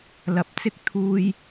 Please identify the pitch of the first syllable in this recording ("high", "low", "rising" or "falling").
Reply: rising